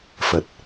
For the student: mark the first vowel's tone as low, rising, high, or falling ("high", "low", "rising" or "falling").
low